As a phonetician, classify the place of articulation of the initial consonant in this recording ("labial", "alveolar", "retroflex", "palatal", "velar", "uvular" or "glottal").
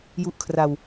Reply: palatal